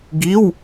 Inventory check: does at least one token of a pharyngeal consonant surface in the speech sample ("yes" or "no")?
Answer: no